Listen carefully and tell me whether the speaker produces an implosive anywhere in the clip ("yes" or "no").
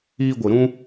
no